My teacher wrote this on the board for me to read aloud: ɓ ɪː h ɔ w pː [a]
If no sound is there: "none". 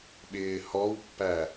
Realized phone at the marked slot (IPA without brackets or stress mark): æ